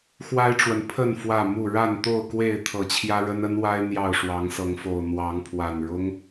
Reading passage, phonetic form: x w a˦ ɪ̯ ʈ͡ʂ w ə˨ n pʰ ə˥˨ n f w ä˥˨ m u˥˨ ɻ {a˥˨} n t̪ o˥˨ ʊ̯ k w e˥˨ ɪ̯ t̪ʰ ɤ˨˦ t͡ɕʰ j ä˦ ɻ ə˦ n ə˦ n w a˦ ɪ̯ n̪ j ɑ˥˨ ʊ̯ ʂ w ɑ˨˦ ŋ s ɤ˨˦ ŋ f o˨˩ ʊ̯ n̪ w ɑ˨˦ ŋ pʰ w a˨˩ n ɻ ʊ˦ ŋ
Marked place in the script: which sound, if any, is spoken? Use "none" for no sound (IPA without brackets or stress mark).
a˥˨